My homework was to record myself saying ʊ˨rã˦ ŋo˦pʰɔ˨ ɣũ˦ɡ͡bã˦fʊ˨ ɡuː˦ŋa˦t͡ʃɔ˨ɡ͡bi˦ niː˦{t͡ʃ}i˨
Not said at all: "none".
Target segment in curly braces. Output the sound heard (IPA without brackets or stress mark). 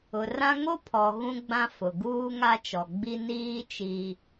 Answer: t͡ʃ